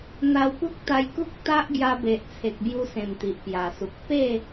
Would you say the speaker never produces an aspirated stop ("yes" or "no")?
no